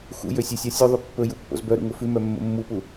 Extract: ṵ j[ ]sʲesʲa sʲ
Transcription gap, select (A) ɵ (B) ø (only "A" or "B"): B